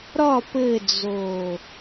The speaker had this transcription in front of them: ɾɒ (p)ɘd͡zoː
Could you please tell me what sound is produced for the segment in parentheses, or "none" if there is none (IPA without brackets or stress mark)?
p